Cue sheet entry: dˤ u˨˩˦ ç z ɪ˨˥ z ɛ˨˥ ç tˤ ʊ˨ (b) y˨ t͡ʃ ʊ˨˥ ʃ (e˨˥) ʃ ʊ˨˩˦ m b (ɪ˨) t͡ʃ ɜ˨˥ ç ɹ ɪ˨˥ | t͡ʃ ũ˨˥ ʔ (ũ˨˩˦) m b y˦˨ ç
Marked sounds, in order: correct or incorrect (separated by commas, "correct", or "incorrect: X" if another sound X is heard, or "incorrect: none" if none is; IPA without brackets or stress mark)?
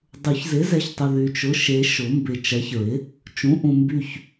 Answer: incorrect: ð, correct, correct, incorrect: ũ˨